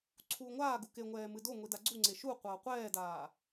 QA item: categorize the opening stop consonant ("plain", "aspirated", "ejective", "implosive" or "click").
click